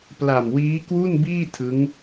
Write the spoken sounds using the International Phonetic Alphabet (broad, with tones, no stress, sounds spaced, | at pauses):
p l a˨˩ m w iː˦˥ k w u˥˩ n b iː˥˩ tʰ ɯ˦˥ ŋ